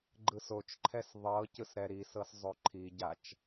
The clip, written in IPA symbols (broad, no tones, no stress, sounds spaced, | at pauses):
ɡ͡ǃ ɯ s o t͡ʃ ǃʰ ɛ s ðˤ ɤ c ɯ s ɾ ɛ ɾ i s ɤ s zˤ o ǃʰ i ɟ a t͡ʃ